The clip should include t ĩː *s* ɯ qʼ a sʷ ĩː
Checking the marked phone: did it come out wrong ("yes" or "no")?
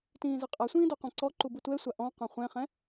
yes